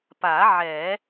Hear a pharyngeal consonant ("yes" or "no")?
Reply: yes